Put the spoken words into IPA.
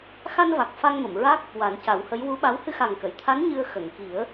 x a˧ n v a˨˩ k̚ f a˧ ŋ m ə˨˩˨ m ɹ a˦˥ k̚ | w a˨˩˦ n c a˨˩˦ w h ə˧˥ j w u˧˥ ɓ a˧˥ w h ɨ˧ x a˨˩ ŋ k ə˨˩˨ j t̪ʰ a˧˥ n ɲ ɨ˧ ə̯ x ə˨˩˨ ŋ k i˨˩˦ ə̯

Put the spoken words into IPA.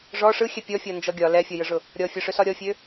ʐ ɔ ʂ ɯ xʲ ɛ pʲ ɔ fʲ ɔ n d͡ʒ ɔ ɡʲ ɒ l ɛ fʲ ɔ j ɯ ʐ ʊ | ɾʲ ɔ fʲ ɔ ʂ ø s ɒ ɾʲ ɔ fʲ ø

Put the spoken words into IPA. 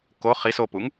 k o χ i s o p u ŋ

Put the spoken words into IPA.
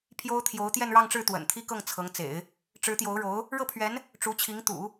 pʰ j o˥ ʊ̯ t̪ʰ j o˧˥ ʊ̯ t̪ j ɛ˥˧ n ɻ ɑ˥˧ ŋ ʈ͡ʂ ɻ̩˥˩ t̪ w ə̰˨˩ n t̪ʰ i˥ k ɤ˥˩ ŋ t͡sʰ ɤ˧˥ ŋ t͡s ḛ˨˩˦ ɪ̯ | ʈ͡ʂ ɻ̩˧˥ t̪ j o˧˥ ʊ̯ ɻ o˧˥ ʊ̯ | ɻ ɤ˥˩ pʰ ɥ ɛ˧˥ n | ʈ͡ʂ u˧˥ t͡ɕʰ i˧˥ ŋ t̪ ṵ˨˩˦

